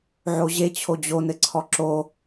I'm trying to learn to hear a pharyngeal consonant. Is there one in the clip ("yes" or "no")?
yes